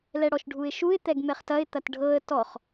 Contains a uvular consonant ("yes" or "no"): yes